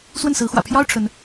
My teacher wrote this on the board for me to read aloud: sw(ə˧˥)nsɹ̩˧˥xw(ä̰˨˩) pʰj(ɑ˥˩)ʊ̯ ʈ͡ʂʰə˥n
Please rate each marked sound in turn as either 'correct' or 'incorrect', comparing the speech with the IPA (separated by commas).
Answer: incorrect, correct, incorrect